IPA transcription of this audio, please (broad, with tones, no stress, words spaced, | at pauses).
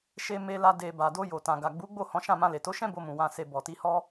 ʃe˧me˧la˧ de˨ ba˨do˧jo˨ tã˨ɡa˨ɡ͡bu˨˦ɡ͡bo˦˨ hɔ̃˨˦ʃã˦˨mã˧ le˨to˨˦ʃɛ̃˦ bo˧mũ˨ wã˨se˨ bɔ˨ti˧hɔ˦